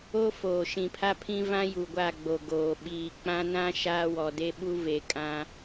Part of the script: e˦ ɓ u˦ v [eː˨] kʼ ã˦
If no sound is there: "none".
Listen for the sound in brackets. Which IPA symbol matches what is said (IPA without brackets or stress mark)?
e˨